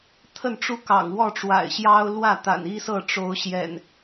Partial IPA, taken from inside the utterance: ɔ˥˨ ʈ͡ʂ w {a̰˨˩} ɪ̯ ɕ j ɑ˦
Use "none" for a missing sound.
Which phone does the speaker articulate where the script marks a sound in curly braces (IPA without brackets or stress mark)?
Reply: a̰˨˩